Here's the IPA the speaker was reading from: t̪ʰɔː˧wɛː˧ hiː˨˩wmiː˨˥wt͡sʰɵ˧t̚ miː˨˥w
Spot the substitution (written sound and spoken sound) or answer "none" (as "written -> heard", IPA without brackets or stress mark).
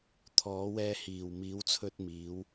ɔː˧ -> ɔː˨˥